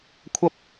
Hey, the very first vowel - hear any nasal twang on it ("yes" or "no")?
no